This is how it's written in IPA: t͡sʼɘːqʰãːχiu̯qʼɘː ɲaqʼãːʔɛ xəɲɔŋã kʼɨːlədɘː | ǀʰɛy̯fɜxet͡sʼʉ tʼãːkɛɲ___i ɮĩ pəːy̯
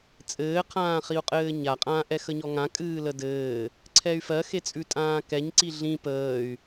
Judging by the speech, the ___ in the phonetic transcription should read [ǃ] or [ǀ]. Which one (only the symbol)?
ǀ